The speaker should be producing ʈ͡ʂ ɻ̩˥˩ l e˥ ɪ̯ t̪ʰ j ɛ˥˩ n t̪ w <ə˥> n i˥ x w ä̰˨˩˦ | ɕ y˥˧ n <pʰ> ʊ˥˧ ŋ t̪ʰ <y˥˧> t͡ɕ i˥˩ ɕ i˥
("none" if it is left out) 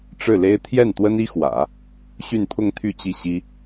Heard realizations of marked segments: ə˥, pʰ, y˥˧

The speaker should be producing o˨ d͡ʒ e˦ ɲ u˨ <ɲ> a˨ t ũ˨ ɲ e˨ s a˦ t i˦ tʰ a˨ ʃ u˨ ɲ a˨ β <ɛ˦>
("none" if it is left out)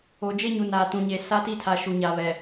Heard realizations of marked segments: n, ɛ˨

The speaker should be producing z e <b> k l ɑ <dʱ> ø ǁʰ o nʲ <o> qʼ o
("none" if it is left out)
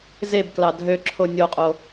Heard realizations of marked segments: b, dʱ, o

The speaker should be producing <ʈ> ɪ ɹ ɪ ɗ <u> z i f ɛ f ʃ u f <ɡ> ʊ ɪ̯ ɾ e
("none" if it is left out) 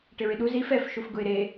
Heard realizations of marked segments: ʈ, u, ɡ

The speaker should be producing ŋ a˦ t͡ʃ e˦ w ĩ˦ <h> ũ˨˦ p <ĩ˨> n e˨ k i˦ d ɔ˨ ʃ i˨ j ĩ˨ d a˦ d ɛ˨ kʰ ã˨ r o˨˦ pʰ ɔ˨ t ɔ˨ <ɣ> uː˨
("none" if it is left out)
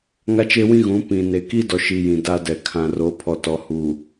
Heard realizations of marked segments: ɣ, ĩ˨, h

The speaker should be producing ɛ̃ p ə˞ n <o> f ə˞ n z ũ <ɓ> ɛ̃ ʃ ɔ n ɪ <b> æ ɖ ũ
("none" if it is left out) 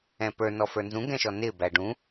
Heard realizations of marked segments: ɔ, ɡ, b

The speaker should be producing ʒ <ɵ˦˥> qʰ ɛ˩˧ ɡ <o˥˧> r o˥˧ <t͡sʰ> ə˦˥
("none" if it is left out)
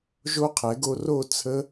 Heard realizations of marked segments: o˦˥, o˧, t͡sʰ

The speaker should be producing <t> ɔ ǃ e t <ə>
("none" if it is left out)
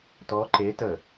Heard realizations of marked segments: t, ə

